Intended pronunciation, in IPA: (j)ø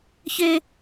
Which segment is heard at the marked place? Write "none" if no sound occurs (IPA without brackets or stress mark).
ç